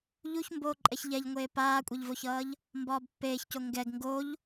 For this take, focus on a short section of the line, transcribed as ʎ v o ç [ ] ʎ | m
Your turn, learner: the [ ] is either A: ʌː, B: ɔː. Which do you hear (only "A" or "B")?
A